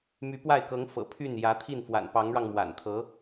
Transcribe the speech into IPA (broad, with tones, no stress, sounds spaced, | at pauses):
m y˧˥ p w a˥˩ ɪ̯ k ɤ˧˥ ŋ f ɤ̰˨˩ pʰ y˥˩ n j ä˧˥ t̪ʰ i˥˩ n f w a̰˨˩ n p ɑ˧˥ ŋ ɻ ɑ˧ ŋ m w a̰˨˩ n t̪ʰ ɤ˧˥